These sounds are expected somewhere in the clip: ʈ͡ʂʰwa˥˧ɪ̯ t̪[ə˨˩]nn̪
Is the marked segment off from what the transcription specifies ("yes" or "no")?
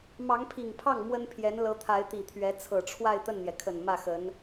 yes